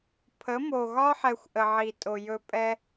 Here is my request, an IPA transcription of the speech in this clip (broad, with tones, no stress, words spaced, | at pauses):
pʰə˨˦mo˨ɣɒ˦ ħɛ˧xʷʔə˨ʕi˨tʼo˨ jɵ˧pʼɛ˦